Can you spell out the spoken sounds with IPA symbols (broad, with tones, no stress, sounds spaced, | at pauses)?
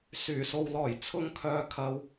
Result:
s yː˨˩ s o˨ w l ɔː˨˩ j t͡sʰ ʊ˧ ŋ kʰ œː˨ kʰ ɐ˨ w